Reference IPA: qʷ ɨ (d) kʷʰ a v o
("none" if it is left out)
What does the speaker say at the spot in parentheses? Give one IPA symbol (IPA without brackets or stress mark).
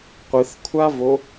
θ